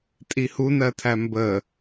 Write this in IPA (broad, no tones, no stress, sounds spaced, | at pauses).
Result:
tʼ i h u n ɜ tʰ æ m b ə